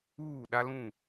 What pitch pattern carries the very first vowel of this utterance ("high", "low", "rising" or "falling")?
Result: falling